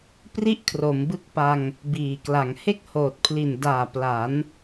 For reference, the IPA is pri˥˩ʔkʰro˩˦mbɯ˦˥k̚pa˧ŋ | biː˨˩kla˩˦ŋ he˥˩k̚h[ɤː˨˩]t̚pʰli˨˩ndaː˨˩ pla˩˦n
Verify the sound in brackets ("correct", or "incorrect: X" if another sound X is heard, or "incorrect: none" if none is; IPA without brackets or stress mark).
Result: incorrect: oː˨˩